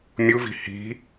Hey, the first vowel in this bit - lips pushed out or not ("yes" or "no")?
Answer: yes